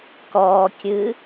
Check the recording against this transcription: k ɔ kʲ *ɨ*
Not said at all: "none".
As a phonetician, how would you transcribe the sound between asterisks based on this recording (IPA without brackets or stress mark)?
ɨ